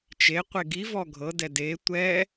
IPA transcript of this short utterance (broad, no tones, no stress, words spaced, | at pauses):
t͡ʃeqʷe ɡivɔ ɡʱɤdɛ de tʷɛ